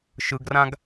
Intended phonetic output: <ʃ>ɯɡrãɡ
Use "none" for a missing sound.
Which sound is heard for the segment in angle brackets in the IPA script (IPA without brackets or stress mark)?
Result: ʃ